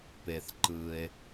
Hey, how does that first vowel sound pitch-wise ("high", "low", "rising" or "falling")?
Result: low